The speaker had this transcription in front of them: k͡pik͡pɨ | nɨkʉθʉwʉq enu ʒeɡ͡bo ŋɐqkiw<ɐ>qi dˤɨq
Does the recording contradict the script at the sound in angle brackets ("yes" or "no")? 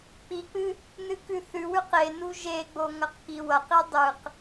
no